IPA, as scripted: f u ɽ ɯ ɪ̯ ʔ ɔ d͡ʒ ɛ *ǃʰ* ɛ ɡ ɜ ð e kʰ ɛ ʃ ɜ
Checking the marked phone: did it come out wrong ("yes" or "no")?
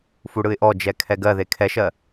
yes